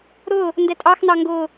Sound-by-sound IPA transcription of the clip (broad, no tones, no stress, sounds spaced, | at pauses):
ɾ ʊː | n d ɛ tʼ ɑ x n ɑ ŋ ɡ ʊː